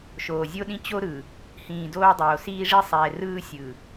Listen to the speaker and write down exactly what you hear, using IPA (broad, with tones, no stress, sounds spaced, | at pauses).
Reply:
ʃ oː˨ zʲ o˦ ɗ ĩ˦ t͡ɕ o˦ ɾ ɯ˨ | h ĩː˨ d oː˦ dˤ oː˨ s iː˦ ʐ i˦ sˤ ɛː˨ r ɯː˦ sʲ ɯ˨